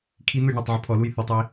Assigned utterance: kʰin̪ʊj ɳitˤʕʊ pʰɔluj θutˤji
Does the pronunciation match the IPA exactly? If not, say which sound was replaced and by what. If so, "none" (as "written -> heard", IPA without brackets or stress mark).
none